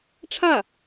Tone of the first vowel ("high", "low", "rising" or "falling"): falling